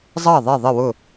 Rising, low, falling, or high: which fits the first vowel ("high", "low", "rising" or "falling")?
falling